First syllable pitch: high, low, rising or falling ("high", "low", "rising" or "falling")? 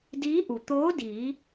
rising